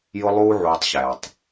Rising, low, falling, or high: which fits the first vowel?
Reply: high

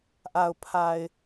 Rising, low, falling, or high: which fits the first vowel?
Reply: low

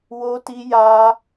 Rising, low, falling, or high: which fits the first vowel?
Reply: high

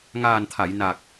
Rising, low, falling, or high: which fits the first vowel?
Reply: low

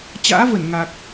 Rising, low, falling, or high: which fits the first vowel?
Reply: rising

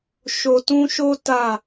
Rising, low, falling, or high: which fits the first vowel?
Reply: low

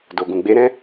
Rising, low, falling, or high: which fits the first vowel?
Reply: low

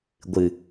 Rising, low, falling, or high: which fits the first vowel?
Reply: low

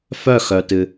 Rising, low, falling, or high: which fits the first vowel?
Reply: falling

